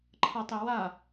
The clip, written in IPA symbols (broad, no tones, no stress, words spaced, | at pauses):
ǃʰɐtˤi wa